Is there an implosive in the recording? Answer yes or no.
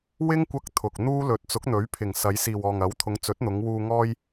no